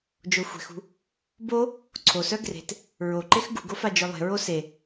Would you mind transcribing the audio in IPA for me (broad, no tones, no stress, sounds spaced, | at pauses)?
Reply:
d͡ʒ o xʷ e̤ x ṳ | b o | ǀʰ o s œ ɡ r e̤ t | ɹ o ǃ e x ɡ ṳ ɡ o f a d͡ʒ œ lˠ e̤ ɹ o s e